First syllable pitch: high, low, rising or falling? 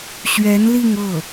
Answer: rising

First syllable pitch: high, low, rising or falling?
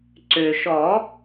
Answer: low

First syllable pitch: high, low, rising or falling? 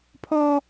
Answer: high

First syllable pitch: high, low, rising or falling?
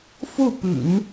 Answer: falling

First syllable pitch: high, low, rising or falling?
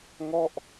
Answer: falling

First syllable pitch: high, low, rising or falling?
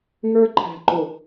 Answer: high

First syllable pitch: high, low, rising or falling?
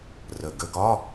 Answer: low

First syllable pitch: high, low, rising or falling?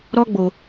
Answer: high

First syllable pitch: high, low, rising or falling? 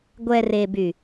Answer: low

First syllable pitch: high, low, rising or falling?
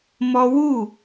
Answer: high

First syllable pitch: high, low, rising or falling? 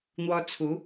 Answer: high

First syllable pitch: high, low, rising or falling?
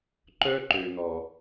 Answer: high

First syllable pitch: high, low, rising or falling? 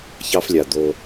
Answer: high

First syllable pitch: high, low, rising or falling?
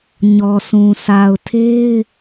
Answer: low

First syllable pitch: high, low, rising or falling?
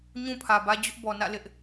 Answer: high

